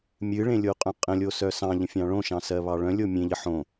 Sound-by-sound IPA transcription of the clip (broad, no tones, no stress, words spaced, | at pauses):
mʲɨɭẽlʲoqʼœ̃ qʼə̃lʲosœ sɑ̃ʎə̃fʲɑ̃ ɭõʃɑ̃sɜβɑ ɭœ̃lʲo mʲẽʎə ħõ